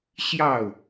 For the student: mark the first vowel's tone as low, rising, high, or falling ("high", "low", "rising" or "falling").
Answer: falling